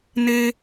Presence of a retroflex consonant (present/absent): absent